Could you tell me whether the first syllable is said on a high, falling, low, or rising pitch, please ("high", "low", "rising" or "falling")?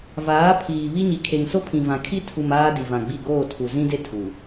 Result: rising